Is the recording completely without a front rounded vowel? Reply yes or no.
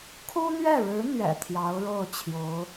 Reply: yes